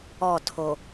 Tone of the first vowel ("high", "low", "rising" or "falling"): falling